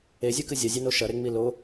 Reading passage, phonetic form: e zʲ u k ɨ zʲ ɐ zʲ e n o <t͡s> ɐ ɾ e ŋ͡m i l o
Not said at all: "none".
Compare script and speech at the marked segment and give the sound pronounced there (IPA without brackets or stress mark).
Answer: ʃ